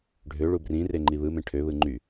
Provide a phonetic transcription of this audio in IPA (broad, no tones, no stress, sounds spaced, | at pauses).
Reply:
ɖʱ ø ɭ u b r ĩ r e ŋ͡ǃ i β ɯ m ẽ ʈʰ ø β ɯ ŋ͡ǃ y